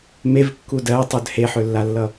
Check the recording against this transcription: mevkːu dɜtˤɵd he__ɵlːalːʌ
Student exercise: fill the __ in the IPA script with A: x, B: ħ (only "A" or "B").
B